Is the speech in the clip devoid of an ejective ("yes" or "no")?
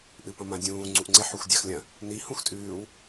no